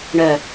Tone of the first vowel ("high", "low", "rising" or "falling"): low